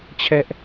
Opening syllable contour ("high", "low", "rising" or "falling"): high